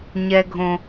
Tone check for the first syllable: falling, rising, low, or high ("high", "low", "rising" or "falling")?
high